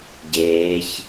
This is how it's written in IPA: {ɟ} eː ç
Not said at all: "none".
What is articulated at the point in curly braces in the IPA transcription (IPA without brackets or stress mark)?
ɟ